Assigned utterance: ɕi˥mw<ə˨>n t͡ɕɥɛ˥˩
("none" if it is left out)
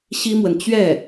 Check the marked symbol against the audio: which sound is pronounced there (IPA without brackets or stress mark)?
ə˨